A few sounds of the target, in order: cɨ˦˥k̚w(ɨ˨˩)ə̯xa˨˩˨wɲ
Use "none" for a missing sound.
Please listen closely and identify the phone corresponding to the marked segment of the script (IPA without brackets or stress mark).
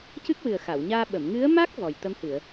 ɨ˨˩